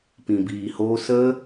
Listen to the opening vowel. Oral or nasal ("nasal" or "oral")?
nasal